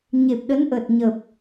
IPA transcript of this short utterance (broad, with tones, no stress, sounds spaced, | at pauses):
ɲ e˨˩ p̚ ɗ ə˨˦ n ʔ ə˨˩ t̚ ɲ ə˨˩ p̚